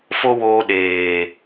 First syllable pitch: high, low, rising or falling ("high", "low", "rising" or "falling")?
high